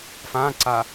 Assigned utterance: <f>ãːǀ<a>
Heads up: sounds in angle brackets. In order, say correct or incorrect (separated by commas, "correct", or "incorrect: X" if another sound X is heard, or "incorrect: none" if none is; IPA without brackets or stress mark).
correct, correct